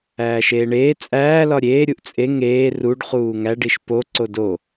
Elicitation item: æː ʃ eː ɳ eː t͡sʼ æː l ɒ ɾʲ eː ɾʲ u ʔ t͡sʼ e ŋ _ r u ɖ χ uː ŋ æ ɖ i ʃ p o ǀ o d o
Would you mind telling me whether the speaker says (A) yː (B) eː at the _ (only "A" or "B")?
B